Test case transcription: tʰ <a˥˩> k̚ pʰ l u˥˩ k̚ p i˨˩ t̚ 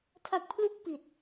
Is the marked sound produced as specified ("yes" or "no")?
no